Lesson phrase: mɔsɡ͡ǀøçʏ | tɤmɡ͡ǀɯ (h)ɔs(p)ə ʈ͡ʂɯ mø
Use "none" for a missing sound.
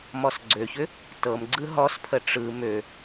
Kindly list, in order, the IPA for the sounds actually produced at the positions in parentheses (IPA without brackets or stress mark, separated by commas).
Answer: ɦ, pʰ